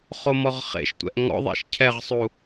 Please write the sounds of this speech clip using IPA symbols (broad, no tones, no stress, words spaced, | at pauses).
χomɔʁχḛʃtʷɛ̰ʔ ŋɔ̰ðˤḛʃ cʰɛʁsˤu